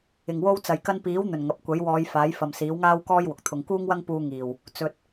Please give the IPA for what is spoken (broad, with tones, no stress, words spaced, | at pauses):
ɪ˨˩ŋwo˥w t͡sɐ˨˩j kɐ˧npiː˨˥wn̪ɵ˨˩n ŋɐ˨p̚ kʷɐ˨˥jwɔː˨˧j faː˨˥jfɐ˨m siː˨˥wŋaː˥wkɔː˥j wʊ˨k̚t̪ʰʊ˧ŋ kuː˥ŋwɐ˥ŋ puː˧ŋiː˨˩w | t͡sɵ˨t̚